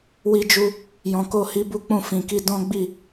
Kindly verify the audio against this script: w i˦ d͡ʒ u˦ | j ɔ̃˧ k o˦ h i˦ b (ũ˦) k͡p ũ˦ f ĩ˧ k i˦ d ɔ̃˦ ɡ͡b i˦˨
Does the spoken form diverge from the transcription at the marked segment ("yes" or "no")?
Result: yes